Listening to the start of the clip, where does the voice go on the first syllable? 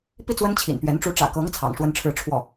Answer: falling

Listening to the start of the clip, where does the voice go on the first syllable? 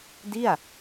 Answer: falling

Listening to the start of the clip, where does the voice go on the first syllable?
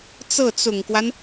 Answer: falling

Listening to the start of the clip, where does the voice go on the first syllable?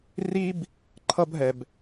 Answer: high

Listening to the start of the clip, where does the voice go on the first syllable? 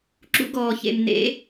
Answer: high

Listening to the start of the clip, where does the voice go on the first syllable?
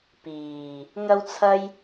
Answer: low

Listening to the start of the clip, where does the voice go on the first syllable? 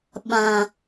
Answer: low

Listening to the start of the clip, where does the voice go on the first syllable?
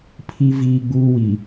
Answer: high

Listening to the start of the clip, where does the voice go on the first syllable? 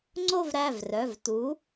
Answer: falling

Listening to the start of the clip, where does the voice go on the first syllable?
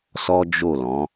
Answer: high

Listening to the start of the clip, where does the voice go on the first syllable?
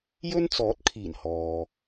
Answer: high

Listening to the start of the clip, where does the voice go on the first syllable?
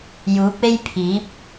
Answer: rising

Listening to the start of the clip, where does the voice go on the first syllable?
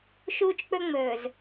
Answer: high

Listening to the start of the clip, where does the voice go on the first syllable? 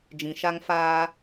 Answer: low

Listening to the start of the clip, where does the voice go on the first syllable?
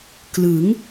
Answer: rising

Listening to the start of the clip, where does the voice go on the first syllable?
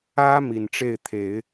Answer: high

